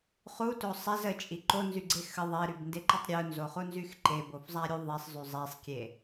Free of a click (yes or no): no